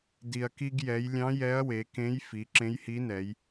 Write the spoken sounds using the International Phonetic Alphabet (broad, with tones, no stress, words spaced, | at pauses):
di˩ɐ̯ki˧ɡjɛ˩˧jlʲɑ̃˧˥ jɛ˧˥ɐ̯we˩˧kẽ˧˥j fi˩˧ǁẽ˧˥jhi˧˥nɛ˩˧j